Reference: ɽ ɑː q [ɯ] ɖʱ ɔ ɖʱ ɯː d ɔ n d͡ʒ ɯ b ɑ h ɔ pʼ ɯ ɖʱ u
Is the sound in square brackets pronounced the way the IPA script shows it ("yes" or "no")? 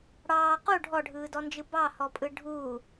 no